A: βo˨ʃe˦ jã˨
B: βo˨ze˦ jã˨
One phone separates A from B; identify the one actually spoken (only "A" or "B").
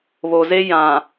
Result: B